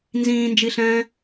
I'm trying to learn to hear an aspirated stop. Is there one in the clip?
no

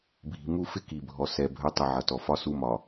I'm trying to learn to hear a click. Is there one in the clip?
no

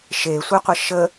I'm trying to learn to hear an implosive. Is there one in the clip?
no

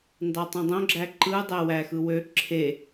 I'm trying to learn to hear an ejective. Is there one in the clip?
no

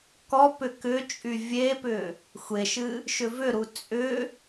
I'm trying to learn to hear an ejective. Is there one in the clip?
yes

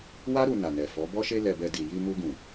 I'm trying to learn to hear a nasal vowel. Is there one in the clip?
yes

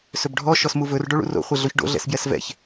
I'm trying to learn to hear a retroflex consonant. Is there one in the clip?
yes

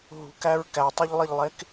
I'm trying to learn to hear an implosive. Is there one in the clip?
no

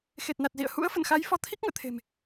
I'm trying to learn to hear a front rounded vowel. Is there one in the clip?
no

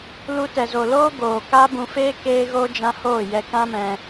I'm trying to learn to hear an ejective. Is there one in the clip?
no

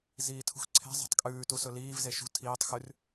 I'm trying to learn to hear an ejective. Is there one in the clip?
yes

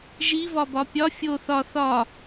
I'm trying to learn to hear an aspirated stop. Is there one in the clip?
no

